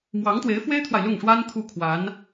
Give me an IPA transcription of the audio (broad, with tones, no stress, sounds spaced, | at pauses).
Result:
m w ɑ˧˥ ŋ t̪ w e˧˥ ɪ̯ f w e˥ ɪ̯ t̪ʰ w a˨ ɪ̯ l ʊ˥˩ ŋ ʂ w a˥ n t̪ʰ u˥˩ kʰ w a˧˥ n